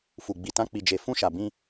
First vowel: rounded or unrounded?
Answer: rounded